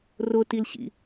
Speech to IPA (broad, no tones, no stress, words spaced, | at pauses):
rʊtilɕḭ